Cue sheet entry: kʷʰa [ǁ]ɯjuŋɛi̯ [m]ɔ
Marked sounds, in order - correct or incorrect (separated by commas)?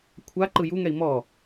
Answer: incorrect, correct